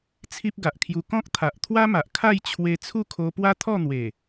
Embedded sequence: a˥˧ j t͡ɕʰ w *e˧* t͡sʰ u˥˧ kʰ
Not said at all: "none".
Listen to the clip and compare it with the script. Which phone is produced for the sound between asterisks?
e˧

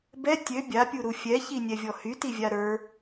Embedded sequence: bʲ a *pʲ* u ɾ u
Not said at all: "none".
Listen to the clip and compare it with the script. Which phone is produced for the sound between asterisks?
pʲ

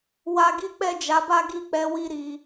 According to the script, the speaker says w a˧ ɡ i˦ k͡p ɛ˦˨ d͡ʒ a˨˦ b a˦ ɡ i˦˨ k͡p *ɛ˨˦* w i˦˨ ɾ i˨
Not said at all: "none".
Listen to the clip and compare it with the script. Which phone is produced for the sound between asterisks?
ɛ˨˦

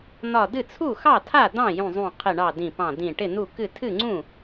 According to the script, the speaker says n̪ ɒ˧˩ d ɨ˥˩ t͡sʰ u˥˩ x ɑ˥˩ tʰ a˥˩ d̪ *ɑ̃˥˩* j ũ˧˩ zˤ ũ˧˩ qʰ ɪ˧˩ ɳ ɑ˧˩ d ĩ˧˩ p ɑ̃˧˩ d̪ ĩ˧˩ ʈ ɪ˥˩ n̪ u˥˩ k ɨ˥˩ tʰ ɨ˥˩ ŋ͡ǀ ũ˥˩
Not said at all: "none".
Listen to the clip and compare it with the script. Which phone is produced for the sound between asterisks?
ɑ̃˥˩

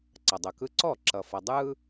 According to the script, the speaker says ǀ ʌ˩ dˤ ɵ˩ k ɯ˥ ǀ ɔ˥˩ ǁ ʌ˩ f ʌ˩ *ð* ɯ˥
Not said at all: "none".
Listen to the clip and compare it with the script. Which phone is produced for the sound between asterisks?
dˤ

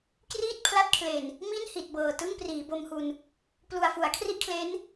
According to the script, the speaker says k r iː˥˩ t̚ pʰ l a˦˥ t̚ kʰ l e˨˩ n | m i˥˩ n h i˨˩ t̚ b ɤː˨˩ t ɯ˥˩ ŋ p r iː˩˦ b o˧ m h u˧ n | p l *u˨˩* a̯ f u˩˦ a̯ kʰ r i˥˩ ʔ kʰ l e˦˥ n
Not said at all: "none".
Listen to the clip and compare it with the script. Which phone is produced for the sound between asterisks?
u˨˩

